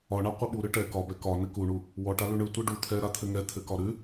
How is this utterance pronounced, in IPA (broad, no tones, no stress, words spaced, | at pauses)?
ɒɳa qʷɘɓu ɾɯʈɛ kɒbɛ kɒ nɘkuɳu | wɔʈa lʉɳɯ tʷɯɖu t̪ʰɛ ɾat̪ʰɘŋɛ t̪ʰɘkɒɾʉ